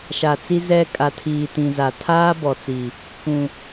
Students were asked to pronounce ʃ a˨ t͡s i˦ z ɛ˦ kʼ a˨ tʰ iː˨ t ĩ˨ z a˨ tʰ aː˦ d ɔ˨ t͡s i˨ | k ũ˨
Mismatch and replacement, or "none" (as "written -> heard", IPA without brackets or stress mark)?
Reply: d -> b